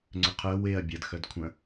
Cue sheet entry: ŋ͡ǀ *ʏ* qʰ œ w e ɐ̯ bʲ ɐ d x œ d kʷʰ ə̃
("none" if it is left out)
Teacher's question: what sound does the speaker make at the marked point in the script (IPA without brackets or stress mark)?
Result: ʏ